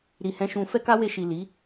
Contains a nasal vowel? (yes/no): yes